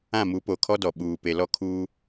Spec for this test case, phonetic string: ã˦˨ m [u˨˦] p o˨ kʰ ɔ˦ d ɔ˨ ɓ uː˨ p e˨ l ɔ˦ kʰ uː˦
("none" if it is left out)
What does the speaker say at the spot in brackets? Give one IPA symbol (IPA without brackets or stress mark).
u˨˦